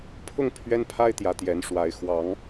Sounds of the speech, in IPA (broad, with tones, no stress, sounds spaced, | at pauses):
pʰ ʊ˥˨ ŋ pʰ ɥ ɛ˦ n pʰ a˦ ɪ̯ t̪ j ä˨˦ t̪ j ɛ˨˦ n ʂ w a˨˦ ɪ̯ x w ɑ˨˦ ŋ